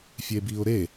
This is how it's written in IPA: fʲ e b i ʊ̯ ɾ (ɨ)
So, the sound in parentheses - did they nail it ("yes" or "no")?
no